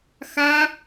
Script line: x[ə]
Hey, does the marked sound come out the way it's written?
no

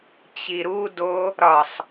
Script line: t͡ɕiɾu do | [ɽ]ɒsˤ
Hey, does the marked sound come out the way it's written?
no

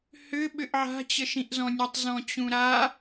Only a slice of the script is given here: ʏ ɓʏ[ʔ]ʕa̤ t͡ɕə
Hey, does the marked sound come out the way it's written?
yes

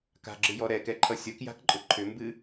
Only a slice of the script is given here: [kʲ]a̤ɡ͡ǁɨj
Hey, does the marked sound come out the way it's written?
no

